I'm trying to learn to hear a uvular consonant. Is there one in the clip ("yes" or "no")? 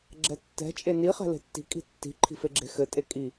yes